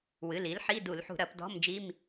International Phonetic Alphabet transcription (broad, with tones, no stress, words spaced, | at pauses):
wɨ˩˧˩l i˩˥lħi˧˥˧du˧˩˧l ħṳ˧˩˧ɾɐ˧˩˧p dɔ̤˧˥˧md͡ʒi˧˥˧m